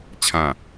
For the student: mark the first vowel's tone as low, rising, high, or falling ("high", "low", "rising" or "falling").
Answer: falling